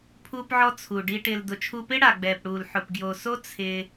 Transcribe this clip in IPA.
pʰuː˧pʕɔ˧ t͡sʰu˨ɖi˧ ʈɪː˨ldʊ˨ t͡ʃʰu˧pɪ˦ɽa˨ ɡ͡bɛː˨pɽuː˨lħʊ˨p ɡjo˨so˦ t͡sʰɪː˧

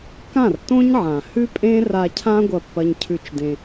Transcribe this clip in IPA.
kã˦˨rtõ˦ɲʕã˨ hʉ˦pʼẽ˦ ra˧cʰã˦ ɡʷɐ˦˨pːɐ˦ɲcʰʉ˦˨t͡ʃdẽ˧

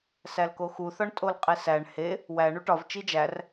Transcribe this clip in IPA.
sælkoxu θɒɳtʼolqʼesæɳ he | wæ ɳuʈɒv t͡ʃid͡ʒær

